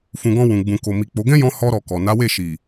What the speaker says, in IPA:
fũ˨ɡɔ̃˧ wũ˨ ɡ͡bũ˨ko˨ mi˨k͡po˨˦ ɡɛ̃˦jɔ̃˧ hɔ˧ɾɔ˨ kɔ˨ na˨˦we˦˨ʃi˨

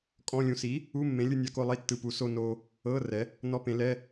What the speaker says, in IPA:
kʼɔ̃˧˥˧lʲũ˧ si˨˥ | u˧˥˧mːẽ˨˥ lʲɯ˧nʲa˨˥ko˧lˠi˧˥˧ tːɯ˧pu˨˥ so˧no˧ | ɤ˧˥˧ rɛ˨˥ | nɔ˧˥˧pẽ˨˥lɛ˧˥˧

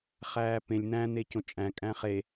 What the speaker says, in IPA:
χæːpẽlʲ n̪æ̃n̪e cõt͡ʃʼæ̃ kʼæ̃χe

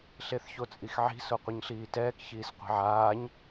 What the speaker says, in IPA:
ɬeθçot͡sʼixʕi̤ soqʷɯɲɬiːtɛːk çiːsqʷi̤ʕaːɲ

